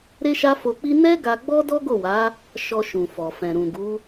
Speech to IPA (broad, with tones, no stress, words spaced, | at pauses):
ɾe˦ʃa˦fo˧k͡pi˦ nɛ˦ɡa˧ ɡ͡bɔ˦dɔ˦ɡo˦˨wa˨˦ | ʃɔ˧ ʃũ˨fɔ˨fɛ̃˨ɾũ˨ ɡu˨˦